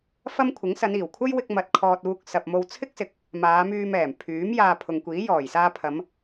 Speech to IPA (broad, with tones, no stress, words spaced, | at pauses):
fɐ˥mkʷʰɪ˨˥ŋ sɐ˨˧niː˨˩wkʷʰɐ˥j wɪ˧k̚ mɐ˧t̚kʰɔː˧t̚ uː˧k̚sɐ˨p̚mo˧w t͡sʰɪ˥k̚sɪ˨k̚ | maː˨˧myː˧mɛː˨˩m pʰyː˨˥m jaː˧pʰʊ˨ŋkʷiː˨˥jɔː˨˩j saː˧pʰɐ˨˧m